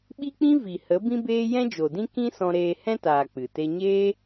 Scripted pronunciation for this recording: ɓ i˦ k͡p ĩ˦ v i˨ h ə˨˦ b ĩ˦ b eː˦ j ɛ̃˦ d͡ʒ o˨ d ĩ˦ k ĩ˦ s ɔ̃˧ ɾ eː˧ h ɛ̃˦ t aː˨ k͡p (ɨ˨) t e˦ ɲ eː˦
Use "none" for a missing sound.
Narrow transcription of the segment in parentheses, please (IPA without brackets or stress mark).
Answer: ɨ˨